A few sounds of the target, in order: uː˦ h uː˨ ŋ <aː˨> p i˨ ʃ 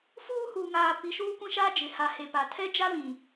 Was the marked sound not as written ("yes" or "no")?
no